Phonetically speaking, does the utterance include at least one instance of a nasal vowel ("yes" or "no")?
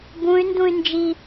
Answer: yes